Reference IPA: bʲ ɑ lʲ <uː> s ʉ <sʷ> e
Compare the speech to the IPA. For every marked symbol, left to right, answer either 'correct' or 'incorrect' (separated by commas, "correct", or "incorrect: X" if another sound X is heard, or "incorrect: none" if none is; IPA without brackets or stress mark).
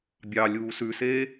correct, incorrect: s